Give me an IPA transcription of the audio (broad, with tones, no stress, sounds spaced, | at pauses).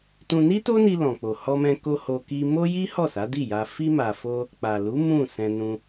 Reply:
t ũ˧ n i˦ t o˦ n i˧ l ɔ̃˨ k͡p o˨ h ɔ˧ m ɛ̃˧ k o˧ h o˧ k i˧ m o˦ j i˦ h ɔ˦˨ s a˨˦ d i˦˨ j a˧ f i˦ m a˧ f o˦ | k͡p a˨ l u˨˦ m ũ˦˨ s ɛ̃˧ n ũ˧